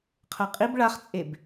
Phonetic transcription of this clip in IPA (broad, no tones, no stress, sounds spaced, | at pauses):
qʰ ɤ qʼ i b ɭ a χ t͡sʼ e b